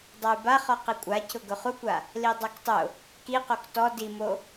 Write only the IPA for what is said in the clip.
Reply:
dˤ a y̯ b a χ ɔ q i kʷʼ a cʰ ʊ ɡ ʊ χ u kʷ a | l i dˤ a k tˤ ʊ | k i q o k t ɔ d i m o

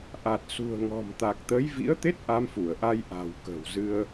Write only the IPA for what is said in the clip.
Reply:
ʔ a˨˩ t̚ s ṳ˨˩ ə̯ ŋ ɔ̤˨˩ m t̪ a˨˩ k̚ t̪ ə˨˦ j v ḭ˧˥ ə̯ t̪ e˦˥ t̚ ʔ a˧ m f u˧˩ ə̯ ʔ a˧ j ʔ a̤˨˩ w k ə̤˨˩ w z ɨ˧ ə̯

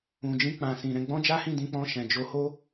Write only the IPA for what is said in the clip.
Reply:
ũ˨ d͡ʒ ĩ˧ k͡p ã˨ s ĩ˨ ɾ ɛ̃˧ ɡ͡b ɔ̃˦ d͡ʒ a˦ h ĩ˦˨ d ĩ˧ k͡p ɔ̃˧ ʃ ɛ̃˨ d͡ʒ o˧ h o˦

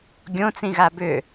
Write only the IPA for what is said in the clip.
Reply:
ɡʲ õ t͡s ĩ ɣ a b ʏ

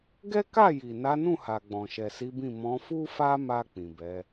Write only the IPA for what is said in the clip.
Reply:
ɡ ɛ˦ k a˦˨ j i˨ n a˨˦ n ũ˦˨ h a˨ ɡ͡b ɔ̃˨ ʃ ɛ˨ s i˨˦ b ĩ˦˨ m ɔ̃˨˦ f u˦ f a˦ m a˧ k͡p ĩ˨ b ɛ˨˦

